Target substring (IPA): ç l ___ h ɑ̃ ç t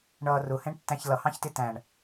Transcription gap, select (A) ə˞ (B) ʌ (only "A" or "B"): B